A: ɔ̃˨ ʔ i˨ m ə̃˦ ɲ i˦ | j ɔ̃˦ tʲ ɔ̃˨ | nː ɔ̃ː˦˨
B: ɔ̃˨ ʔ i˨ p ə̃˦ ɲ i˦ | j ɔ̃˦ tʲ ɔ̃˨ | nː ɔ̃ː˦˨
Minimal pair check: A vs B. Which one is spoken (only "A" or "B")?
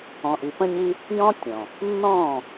B